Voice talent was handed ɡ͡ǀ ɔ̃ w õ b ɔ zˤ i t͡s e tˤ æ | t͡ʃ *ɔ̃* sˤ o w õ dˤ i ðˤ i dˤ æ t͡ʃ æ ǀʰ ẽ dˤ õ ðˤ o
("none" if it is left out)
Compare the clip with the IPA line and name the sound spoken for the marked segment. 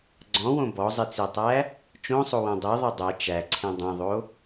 õ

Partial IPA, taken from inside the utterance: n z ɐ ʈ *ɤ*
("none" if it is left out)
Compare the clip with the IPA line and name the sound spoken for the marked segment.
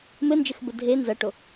o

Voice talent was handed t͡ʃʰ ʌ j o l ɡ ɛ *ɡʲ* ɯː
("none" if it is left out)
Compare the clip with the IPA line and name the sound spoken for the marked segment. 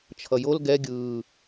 ɡʲ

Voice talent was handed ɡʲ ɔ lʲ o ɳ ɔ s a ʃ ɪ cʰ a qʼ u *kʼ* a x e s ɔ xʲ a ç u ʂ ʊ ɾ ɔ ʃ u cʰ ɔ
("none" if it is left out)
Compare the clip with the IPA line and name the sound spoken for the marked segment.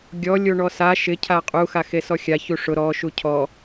x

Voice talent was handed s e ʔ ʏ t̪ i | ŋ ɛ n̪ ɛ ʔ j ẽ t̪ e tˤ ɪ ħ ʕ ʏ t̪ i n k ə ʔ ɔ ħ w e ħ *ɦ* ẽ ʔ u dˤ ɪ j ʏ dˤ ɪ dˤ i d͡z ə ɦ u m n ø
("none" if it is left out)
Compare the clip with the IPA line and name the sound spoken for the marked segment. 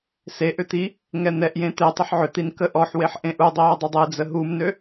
ʔ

